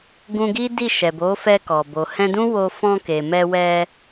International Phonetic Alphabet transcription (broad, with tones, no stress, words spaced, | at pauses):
ɡũ˧ɡi˦di˦˨ ʃɛ˨bo˨˦fɛ˧ kɔ˨ bo˨hɛ̃˧dũ˦wo˧ fɔ̃˧ke˨ mɛ˧wɛ˧